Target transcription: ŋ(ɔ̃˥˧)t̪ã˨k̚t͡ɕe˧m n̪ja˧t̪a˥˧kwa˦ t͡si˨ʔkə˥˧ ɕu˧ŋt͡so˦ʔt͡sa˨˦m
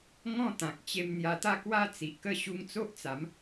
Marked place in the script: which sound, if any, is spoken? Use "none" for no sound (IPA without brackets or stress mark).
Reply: ɔ̃˥˧